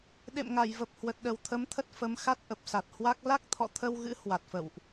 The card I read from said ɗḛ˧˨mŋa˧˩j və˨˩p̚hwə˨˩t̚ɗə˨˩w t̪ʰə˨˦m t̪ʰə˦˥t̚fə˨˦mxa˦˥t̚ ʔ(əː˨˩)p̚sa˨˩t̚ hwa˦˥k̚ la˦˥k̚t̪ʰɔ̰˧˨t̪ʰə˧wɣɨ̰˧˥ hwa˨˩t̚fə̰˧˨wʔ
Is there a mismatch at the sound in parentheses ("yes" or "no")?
yes